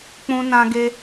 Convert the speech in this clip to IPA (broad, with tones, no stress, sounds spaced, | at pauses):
k͡p ũ˧ n ã˧ ɡ e˧